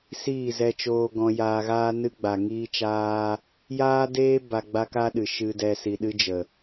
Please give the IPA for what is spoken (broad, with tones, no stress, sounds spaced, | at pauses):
s iː˦˨ z ɛ˧ t͡ʃ oː˧ ɡ ɔ̃˧ j aː˧ ɣ aː˦ n ɨ˦ ɡ͡b a˨ ŋ iː˧ t͡ʃ aː˧ | j aː˦ d eː˦ b a˧ ɡ͡b a˦ k a˦ ɗ ɨ˨ ʃ ɨ˧ d ɛ˧ s i˧ ɗ ɨ˦ d͡ʒ ə˨